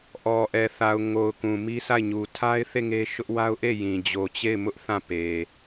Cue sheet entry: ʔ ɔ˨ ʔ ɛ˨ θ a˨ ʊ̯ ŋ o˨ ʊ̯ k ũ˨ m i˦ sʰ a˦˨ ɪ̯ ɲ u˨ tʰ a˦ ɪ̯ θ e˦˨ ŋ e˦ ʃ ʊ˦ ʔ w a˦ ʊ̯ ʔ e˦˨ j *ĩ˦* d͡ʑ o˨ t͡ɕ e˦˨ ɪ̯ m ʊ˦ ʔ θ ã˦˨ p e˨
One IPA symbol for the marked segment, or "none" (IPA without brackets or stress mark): ĩ˨